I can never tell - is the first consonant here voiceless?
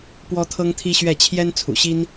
yes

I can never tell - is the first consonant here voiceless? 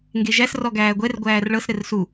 no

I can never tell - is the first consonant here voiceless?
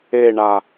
no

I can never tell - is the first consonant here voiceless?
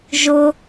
no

